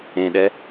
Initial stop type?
implosive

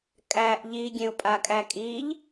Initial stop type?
ejective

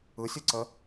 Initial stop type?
click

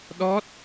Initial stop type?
implosive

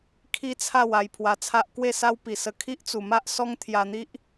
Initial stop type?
aspirated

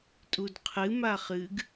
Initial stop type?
ejective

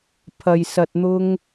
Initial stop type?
aspirated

